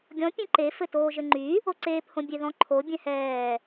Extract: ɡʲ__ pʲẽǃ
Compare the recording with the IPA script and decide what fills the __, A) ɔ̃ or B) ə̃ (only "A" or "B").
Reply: A